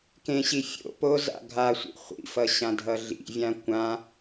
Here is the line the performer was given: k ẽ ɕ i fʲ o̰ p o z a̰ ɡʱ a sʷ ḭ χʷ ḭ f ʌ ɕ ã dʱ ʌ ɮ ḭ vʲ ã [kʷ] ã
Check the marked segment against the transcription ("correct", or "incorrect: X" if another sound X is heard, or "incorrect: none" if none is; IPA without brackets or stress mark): correct